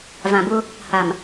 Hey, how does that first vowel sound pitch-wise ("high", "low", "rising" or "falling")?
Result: low